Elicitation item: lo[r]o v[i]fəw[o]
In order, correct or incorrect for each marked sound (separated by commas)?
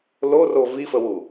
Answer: correct, correct, incorrect